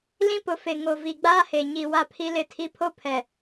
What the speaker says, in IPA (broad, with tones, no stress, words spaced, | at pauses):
lĩ˦pʊ˨ fe˨ ŋo˨vi˨ɡ͡baː˦he˨ ɲi˨ wa˦pʰi˦ lɪ˦˨tʰi˦ pʰo˦pʰɛ˨